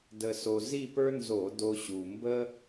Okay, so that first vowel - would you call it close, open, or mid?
mid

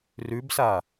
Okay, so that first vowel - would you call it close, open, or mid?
close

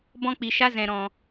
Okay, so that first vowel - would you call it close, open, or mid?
mid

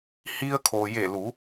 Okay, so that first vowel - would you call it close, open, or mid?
close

